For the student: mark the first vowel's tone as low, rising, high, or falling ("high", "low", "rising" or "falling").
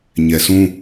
low